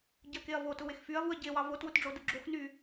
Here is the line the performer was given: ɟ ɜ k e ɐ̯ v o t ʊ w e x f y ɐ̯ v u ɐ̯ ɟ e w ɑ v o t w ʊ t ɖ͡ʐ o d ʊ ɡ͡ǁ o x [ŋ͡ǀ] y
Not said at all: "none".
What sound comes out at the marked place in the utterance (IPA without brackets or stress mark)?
n